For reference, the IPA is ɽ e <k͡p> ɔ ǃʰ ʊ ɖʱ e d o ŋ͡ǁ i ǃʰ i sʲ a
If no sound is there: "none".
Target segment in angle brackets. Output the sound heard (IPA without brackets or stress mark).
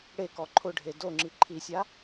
k